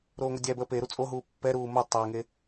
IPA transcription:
ɾoːŋʷedʲæbəː pe ɾut͡sʼoɦuː pːɛɾuː mo tˤeŋe

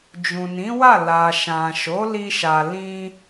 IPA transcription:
d͡ʒũ˨nĩ˨˦wa˦˨ la˨ ʃã˨ ʃo˨˦li˧ʃa˨ lĩ˧

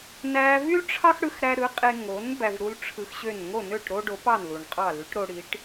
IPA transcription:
næ˧vy˥lʈ͡ʂʰɑ˥x ɽɯ˧xɾæ˧ ɾɯ˩˥qʼe˧ ŋo˩˥n bæ˧vɾu˥l ʈ͡ʂʰɯ˧xɕø˥˩n ŋo˥˩nø˥˩ʈ ɾo˥ɖo˩˥pɑ˥˩n lu˩ɳqʼɑ˥˩ ly˩˥ʈɾo˧ɽi˩˥ʈ

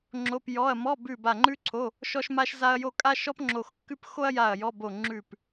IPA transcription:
ŋ͡ǁo˧˥˧pjɔ˧˥˧ɐ̯ mɔ˧˥˧ bʉ˦˨ ba˦˨ŋ͡ǃʉ˥ǀʰo˧˥˧ | ʃɔ˥ʃma˥ʃza˥ɐ̯jo˥ kʼa˥ʃɔ˥pŋ͡ǁo˦˨xkːʉ˥p xo˥ɐ̯ ja˦˨ɐ̯jɔ˧˥˧bo˦˨ ŋ͡ǁʉ˦˨p

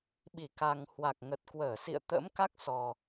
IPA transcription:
ɓi˧˩ ka˨˩ŋ hwa˨˩k̚ŋə˨˩t̚kwəː˧˩sḭ˧˨ə̯ t̪ə̰ː˧˥mka˦˥k̚sɔ˨˩

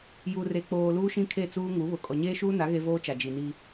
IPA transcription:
ju˨re˨ k͡poː˨ luː˦ʃĩ˦kʰe˦˨t͡suː˦ ŋu˨˦βʊ˨ kʼɔ˨ɲeː˦ʃuː˦na˨˦ ɣe˦voː˦t͡ʃa˨ d͡ʒi˨ni˦

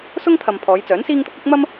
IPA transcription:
sʊ˥ŋt̪ʰɐ˨m pʰɔː˨˧jt͡sœː˨˥nsiː˥ŋt̪ʊ˥k̚ ɪ˥k̚ mɐ˥m

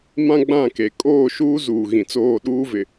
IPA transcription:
mã˦ɡ͡bã˦˨ ke˨ kʼoː˦˨ʃuː˦ zuː˨ɣĩ˨t͡soː˦˨ ɗuː˦vɪ˨

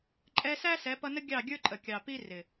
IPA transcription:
ǃʼɛ˧sæ˦ sɛ˨˦pʌ˧nə˦ ɡʲɑ˦˨ɡʲə˞˦ǃʼə˨ kʲɑ˨pi˦ rɪ˨

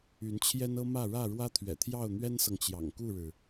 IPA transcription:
y˨˦nt͡ɕʰjɛ˦nɤ˦mä˥˨ ɻä˥˨ɻwä˦ t̪ʰɥɛ̰˨˩t̪ʰjɑ˥˨ʊ̯n̪ɥɛ˦nsɤ˨ŋ t͡ɕjɑ̰˨˩ŋku˥˨ɻɻ̩˩

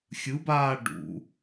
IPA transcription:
xʲɯbaː ɖṵ

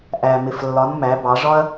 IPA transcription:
ʔæ˩mɪ˩flːɒ˩˧n mæ˩˧bɑ˩˧ʐɒ˥ɐ̯

